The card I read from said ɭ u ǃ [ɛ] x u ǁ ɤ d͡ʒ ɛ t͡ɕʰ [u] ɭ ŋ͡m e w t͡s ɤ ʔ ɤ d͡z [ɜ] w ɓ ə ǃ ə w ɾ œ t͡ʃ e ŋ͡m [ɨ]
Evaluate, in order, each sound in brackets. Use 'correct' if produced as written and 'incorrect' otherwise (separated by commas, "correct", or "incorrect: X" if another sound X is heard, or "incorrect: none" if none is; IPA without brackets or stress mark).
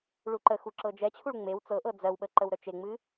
incorrect: ə, correct, correct, correct